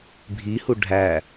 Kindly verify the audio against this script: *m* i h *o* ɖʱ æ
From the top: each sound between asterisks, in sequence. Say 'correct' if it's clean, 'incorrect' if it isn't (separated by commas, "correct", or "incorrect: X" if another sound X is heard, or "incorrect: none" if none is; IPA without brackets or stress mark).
incorrect: bʱ, incorrect: u